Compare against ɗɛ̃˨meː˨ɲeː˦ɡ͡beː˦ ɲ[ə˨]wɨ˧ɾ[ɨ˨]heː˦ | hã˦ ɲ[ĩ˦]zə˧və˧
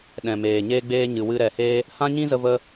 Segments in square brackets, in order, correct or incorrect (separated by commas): incorrect, incorrect, correct